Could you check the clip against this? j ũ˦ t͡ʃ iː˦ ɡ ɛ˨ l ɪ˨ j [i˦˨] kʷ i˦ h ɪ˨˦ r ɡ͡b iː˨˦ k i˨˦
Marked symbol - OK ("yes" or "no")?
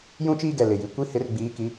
no